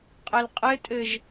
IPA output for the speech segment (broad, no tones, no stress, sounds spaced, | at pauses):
qʼ ə l qʼ ɘ tʼ ɘ ʒ